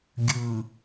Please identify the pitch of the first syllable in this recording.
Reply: low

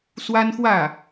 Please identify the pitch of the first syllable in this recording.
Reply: high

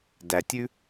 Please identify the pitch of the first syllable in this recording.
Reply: low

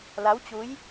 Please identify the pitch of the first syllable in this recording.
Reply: rising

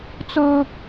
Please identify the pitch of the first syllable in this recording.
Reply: high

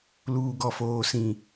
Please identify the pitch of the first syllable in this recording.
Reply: low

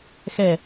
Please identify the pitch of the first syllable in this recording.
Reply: falling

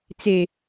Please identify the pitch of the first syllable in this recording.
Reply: low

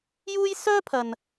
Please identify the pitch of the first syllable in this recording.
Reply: high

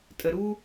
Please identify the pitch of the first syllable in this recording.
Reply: low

